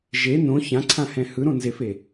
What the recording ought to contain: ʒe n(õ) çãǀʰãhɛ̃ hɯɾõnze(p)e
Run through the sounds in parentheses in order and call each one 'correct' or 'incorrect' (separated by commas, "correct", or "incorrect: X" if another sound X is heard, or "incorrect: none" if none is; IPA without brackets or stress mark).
correct, incorrect: f